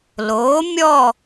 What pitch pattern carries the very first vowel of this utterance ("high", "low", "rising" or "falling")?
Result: rising